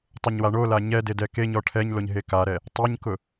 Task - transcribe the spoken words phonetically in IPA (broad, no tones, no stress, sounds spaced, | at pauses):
tˤ ʊ ɲ w a ɳ o l a ɲ ɛ d e d ɛ k e ɲ ɔ ʈʰ ɛ ɲ l o ɲ ɦ e k a ɾ ɛ | tˤ ɛ ɲ k ʊ